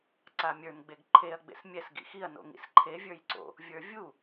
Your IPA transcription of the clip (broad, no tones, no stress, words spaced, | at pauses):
ǀamʲə˞n ɡ͡beɡǃʰeɐ̯ ɡ͡bḛsmʲɛs ɡḭxiɐ̯ no̰ŋḭsǃʰe vʲə˞jǀo̰ | vʲə˞vʲu